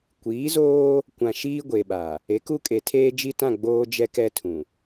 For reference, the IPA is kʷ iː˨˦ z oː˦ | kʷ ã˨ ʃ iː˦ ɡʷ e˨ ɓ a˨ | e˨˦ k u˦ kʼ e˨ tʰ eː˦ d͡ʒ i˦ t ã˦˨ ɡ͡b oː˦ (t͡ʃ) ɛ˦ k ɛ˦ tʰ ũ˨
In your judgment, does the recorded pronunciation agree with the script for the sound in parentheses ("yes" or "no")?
no